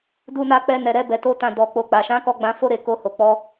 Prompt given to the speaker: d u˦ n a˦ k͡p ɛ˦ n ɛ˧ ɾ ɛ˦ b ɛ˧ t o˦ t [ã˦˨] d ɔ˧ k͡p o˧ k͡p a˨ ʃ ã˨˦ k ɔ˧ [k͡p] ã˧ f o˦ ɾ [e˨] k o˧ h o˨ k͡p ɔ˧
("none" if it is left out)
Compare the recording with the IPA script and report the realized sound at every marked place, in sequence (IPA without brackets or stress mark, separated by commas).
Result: ã˦˨, ɡ͡b, e˧